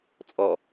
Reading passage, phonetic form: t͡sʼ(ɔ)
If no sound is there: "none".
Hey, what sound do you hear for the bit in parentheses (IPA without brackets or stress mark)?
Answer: ɔ